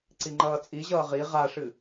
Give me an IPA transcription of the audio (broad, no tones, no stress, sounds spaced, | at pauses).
ǀ i ŋ͡ǃ ʌː t͡sʼ i ʑ ʌː ʁ i ʁ a ʂ ɨ